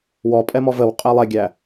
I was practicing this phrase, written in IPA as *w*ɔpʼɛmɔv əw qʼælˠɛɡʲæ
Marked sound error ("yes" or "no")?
no